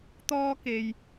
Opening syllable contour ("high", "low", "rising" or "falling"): high